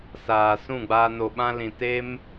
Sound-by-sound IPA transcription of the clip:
s aː˨ s ũ˦˨ ɡ͡b aː˧ n o˨ ɓ ã˧ l ĩ˨ t e˧ m

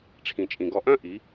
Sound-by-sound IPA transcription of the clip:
ʈ͡ʂʰ ĩ˨ t͡ʃʼ ĩ˨ ɡ ɔ˧ ʔ œ̃˦ ʔ i˨˦

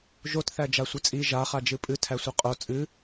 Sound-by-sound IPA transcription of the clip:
ʒ o t θ æ d͡ʒ a sʷ ɨ t͡sʼ i ʒ a χ a d͡ʒ ɨ pʼ ɨ tʰ æ sʷ i qʼ o t͡sʼ ɨ

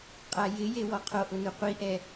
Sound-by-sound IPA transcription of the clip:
qʼ a j ɪ j e w ɔ qʰ o ʔ ʊ n u qʷ i ʔ ɛ

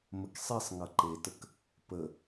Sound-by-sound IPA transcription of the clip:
m ə k sˤ i sˤ ŋ ʌ ǃ e t ə k | p ə

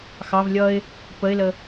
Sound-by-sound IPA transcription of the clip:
x ɑ v lʲ ʌ ɪ̯ | p ə ɪ̯ l ə

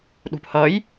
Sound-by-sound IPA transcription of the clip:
ɗ ṳ p h ʌ j

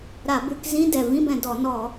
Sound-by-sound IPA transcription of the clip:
ɾ a˧˩˧ b ʉ˧˩˧ k z ĩ˧˥˧ d ɛ˨˩ v ĩ˧˥˧ b ɛ̃˩˧ d ɔ˧˩˧ n ɔ˧˩˧

